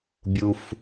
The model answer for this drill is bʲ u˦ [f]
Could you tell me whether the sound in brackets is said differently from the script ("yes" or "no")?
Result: no